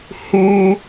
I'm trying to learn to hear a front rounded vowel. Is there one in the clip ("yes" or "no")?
yes